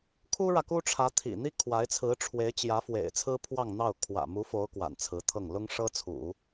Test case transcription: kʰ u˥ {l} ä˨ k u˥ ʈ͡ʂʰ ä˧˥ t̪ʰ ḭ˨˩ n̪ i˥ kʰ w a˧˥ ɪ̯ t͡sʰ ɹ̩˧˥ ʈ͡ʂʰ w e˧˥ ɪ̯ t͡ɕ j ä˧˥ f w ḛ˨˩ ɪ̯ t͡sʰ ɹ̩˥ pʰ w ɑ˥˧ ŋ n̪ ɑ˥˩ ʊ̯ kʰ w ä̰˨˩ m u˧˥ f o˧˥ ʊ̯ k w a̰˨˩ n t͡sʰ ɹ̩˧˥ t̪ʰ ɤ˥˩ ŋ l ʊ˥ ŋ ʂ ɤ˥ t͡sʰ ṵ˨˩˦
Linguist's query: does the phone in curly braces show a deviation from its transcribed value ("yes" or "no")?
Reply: yes